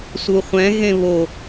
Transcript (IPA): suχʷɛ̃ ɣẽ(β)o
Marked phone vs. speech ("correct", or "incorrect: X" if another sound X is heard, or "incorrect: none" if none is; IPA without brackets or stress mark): correct